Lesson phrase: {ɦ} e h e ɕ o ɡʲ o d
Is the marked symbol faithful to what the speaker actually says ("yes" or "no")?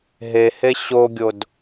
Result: yes